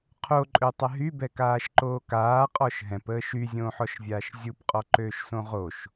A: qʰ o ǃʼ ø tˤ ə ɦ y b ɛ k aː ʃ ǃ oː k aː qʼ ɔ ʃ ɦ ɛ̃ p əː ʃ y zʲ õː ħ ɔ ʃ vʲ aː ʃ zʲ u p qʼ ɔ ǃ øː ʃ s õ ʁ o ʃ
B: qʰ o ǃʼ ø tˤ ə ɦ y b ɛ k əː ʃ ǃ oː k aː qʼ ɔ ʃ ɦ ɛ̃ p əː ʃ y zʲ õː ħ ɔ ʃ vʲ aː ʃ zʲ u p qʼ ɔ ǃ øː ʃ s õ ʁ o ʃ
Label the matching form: A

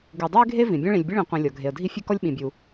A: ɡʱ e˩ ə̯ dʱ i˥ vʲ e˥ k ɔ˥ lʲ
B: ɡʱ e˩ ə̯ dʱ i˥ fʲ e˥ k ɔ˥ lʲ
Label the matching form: B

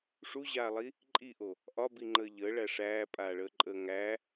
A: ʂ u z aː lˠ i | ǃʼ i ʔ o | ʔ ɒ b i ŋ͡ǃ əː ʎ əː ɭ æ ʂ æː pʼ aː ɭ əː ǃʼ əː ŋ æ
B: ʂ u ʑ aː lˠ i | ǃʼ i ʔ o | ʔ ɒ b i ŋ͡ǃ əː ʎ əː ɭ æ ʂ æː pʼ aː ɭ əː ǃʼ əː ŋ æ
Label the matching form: B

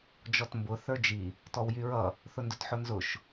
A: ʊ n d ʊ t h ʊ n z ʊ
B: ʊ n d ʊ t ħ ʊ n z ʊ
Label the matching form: B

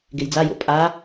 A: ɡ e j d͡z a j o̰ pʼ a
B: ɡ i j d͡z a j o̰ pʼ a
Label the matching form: A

